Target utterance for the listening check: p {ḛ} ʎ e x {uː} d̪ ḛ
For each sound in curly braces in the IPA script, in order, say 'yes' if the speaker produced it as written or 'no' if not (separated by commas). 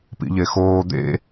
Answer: no, no